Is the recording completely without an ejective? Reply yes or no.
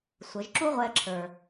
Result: yes